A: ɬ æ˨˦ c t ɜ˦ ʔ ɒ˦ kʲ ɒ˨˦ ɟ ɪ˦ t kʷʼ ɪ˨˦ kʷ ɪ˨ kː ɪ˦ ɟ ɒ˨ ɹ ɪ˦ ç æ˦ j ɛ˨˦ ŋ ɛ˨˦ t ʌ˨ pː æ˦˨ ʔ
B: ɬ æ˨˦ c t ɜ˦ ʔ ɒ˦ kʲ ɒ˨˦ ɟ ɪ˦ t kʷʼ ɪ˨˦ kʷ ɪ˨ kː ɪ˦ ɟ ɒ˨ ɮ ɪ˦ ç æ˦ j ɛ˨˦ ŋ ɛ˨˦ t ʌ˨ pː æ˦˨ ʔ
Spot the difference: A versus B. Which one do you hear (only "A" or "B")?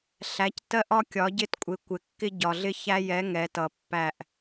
B